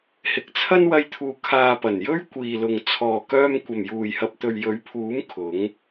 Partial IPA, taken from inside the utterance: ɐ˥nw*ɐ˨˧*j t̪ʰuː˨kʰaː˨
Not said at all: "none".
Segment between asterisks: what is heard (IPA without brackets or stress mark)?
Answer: ɐ˧